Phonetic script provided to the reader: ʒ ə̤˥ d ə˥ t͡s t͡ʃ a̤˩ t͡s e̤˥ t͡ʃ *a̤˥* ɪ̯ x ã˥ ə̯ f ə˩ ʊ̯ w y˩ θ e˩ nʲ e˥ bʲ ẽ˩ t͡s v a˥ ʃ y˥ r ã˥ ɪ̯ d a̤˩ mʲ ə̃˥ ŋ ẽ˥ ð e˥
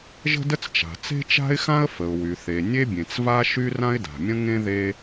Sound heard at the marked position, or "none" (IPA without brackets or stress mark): a̤˥